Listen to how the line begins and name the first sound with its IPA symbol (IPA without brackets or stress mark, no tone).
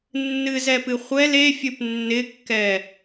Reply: nː